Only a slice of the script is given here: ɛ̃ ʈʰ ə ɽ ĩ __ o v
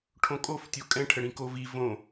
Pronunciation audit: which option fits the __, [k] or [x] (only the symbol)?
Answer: k